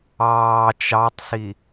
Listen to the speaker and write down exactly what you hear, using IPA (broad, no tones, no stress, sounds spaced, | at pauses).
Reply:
ɑː t͡ʃ ɑ tˤ s i